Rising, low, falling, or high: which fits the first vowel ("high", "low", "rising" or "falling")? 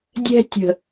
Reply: high